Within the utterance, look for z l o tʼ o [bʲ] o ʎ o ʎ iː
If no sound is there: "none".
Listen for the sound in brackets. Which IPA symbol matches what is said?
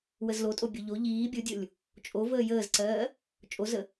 bʲ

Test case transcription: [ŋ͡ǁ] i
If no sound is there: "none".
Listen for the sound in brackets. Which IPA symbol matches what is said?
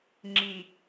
ŋ͡ǁ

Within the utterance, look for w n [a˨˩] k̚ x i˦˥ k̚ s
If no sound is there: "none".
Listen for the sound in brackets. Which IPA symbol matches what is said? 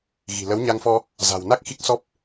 a˦˥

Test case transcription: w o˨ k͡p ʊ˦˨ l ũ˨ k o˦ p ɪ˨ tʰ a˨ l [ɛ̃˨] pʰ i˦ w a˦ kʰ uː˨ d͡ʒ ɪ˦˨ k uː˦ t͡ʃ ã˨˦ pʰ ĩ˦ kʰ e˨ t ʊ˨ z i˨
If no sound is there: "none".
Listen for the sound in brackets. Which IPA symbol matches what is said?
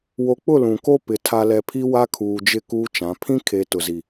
ɛ˨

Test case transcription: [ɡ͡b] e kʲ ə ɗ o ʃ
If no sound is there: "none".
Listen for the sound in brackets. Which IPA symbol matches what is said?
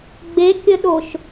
ɡ͡b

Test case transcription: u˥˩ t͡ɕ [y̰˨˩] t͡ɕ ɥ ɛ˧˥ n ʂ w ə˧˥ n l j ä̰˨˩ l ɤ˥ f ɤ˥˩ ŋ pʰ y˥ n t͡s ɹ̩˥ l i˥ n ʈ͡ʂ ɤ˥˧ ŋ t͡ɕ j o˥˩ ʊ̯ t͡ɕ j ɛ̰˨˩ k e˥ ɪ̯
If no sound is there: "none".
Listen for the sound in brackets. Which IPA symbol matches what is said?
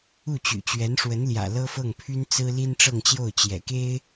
y̰˨˩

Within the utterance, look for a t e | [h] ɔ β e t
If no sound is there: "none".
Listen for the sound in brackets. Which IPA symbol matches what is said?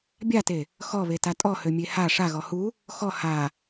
x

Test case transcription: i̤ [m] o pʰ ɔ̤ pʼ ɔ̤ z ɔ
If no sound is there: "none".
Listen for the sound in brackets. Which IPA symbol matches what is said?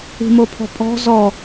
m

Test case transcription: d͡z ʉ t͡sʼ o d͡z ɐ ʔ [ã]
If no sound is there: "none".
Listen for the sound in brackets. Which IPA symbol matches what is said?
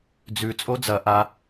a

